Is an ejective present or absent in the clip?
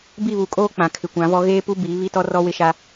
present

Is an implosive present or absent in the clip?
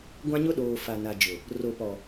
present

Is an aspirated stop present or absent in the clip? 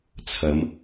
present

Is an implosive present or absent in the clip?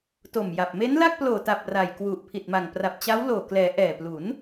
absent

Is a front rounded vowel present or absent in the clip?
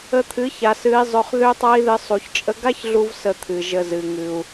present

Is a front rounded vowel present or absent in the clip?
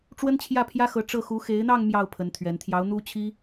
absent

